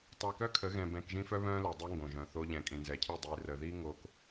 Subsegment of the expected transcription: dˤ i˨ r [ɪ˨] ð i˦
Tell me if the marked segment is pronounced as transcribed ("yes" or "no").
no